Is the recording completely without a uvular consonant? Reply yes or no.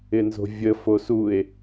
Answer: yes